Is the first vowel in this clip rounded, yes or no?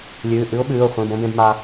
yes